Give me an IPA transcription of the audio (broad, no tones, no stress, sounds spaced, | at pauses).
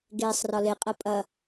ɡ eː sˤ r ɒ l e qʼ ɐ pʼ ɐ